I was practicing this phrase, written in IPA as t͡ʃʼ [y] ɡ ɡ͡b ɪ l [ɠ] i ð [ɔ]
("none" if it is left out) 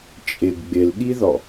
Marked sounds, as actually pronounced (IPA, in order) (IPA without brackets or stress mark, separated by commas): ɪ, ɠ, ɔ